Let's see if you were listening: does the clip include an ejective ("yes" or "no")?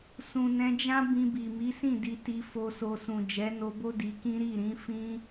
no